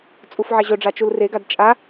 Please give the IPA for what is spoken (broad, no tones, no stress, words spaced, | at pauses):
t͡sʼufʕɛʑɵɖ͡ʐa t͡ʃulreɡad t͡ʃʼa